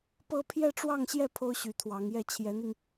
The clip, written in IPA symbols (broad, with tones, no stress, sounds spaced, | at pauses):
p ɤ˥ pʰ j ɛ˥˧ ʈ͡ʂ w ɑ˥˧ ŋ ɕ j ɛ˥˩ pʰ o˥ ʊ̯ ɕ y˧˥ t̪ʰ w ɑ˧˥ ŋ j ɛ˥˩ t͡ɕʰ j ɛ˧˥ n̪ i˧ ŋ